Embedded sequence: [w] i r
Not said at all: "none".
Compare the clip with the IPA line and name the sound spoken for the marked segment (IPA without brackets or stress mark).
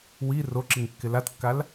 w